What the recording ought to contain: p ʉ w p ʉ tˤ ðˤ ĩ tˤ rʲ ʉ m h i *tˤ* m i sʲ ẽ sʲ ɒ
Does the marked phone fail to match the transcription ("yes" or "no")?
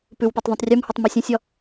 no